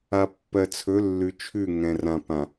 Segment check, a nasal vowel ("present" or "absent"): present